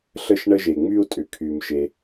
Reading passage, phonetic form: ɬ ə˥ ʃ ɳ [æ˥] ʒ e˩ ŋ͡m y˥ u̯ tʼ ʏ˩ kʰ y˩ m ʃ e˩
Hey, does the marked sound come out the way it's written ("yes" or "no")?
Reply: no